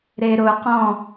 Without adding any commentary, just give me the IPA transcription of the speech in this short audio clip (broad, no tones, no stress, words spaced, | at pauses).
ɾeɾʊqɔ̃